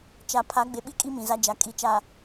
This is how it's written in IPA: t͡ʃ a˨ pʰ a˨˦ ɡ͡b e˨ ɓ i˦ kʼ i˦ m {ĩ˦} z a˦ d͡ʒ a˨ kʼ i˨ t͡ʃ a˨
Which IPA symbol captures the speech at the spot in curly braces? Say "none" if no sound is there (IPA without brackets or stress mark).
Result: ĩ˨